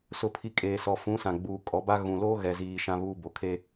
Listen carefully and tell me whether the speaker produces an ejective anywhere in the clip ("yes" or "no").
yes